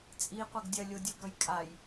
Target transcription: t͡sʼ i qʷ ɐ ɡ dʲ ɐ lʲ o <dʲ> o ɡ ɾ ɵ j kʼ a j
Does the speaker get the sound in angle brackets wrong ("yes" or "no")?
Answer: no